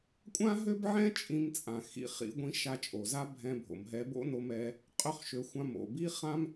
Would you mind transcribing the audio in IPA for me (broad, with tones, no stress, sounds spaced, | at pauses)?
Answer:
kʷʼ ã˥ ɦ ø˥ b ʕ ɛ̃˥ t͡ʃʼ ĩ˧ m t͡sʼ ã˩ x ḭ˧ χ ḭ˧ ɡʷ ĩ˧ ʃ a˧ t͡ʃʼ o˩ z a˥ bʱ ɛ̃˧ bʱ o̰˩ m ɦ ɛ˧ b o̰˥ n o˧ m ɛ˧ | qʼ ø˥ χ ʃ ø˧ xʷ ã˧ m o̰˩ b i˥ χ ã˥ m